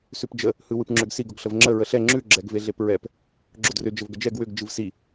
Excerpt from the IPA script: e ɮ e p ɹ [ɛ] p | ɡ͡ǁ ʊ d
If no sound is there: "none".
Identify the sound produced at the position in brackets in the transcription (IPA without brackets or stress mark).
ɛ